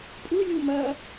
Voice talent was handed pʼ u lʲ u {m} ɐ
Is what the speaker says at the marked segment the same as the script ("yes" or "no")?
yes